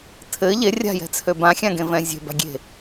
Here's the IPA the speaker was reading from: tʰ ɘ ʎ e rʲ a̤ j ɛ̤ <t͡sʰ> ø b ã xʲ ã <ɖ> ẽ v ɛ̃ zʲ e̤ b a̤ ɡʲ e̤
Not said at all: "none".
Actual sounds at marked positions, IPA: t͡sʰ, ɡ

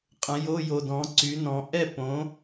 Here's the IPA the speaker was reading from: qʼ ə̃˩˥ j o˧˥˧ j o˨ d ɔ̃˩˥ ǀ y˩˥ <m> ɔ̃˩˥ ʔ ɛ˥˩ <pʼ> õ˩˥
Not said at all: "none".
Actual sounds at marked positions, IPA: n, p

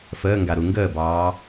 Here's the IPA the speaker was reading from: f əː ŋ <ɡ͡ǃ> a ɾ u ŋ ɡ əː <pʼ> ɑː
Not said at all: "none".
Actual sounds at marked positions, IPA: ɡ, b

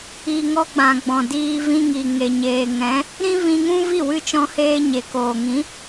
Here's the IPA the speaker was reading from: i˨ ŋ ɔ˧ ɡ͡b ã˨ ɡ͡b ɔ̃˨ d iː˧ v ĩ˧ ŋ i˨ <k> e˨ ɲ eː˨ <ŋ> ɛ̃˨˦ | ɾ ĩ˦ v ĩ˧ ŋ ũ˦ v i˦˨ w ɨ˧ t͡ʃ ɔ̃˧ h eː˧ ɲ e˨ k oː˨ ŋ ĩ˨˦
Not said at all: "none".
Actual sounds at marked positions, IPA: ŋ, ŋ

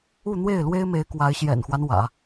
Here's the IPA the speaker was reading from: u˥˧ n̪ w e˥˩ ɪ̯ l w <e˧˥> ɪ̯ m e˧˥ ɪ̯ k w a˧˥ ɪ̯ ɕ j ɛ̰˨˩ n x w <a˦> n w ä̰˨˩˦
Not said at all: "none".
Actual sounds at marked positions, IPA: e˥, a˦

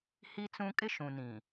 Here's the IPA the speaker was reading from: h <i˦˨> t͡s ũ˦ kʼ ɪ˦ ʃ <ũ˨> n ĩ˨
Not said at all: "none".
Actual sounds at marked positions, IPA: i˦, ũ˨

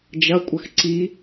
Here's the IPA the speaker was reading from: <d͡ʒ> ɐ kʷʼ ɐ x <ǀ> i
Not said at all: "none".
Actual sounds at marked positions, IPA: d͡ʒ, ǀ

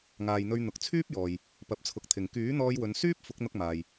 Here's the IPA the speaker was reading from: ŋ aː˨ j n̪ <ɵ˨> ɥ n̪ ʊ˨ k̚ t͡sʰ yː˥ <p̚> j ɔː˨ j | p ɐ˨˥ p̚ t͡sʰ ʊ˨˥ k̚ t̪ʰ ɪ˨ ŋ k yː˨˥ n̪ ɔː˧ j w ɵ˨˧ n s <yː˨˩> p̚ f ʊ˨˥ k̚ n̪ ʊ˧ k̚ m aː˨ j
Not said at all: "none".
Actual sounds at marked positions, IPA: ɵ˧, p̚, yː˥

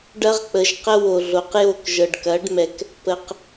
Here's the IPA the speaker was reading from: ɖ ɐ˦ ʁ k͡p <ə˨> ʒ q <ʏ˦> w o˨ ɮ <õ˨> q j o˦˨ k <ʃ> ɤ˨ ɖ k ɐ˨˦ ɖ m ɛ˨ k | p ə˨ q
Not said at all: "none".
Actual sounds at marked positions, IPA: ə˨, ə˦, o˨, ʒ

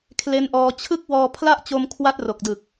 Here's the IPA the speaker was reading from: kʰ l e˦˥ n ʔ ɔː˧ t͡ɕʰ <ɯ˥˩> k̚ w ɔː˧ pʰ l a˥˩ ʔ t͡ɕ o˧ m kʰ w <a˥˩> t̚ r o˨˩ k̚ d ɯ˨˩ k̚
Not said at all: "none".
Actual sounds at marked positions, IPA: ɯ˦˥, a˦˥

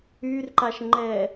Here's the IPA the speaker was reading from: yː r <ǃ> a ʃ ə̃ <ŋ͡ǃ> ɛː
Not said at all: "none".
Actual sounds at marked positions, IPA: ǃ, ŋ͡ǃ

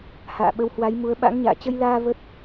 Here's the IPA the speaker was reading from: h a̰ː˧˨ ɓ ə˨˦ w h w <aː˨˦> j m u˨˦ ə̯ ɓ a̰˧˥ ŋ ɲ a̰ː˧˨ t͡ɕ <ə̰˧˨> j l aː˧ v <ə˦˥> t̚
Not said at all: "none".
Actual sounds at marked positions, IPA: a˨˦, ə˧, ə˦˥

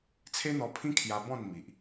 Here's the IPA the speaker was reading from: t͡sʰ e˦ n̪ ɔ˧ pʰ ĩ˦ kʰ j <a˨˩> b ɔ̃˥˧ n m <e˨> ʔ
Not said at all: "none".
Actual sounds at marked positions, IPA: a˧, i˨

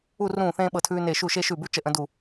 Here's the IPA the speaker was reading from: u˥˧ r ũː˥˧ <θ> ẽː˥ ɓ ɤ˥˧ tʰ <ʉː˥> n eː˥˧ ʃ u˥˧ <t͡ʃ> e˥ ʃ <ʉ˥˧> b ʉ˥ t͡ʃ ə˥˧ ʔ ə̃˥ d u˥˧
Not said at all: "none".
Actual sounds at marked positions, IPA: θ, ʉː˥, ʃ, ʉ˥˧

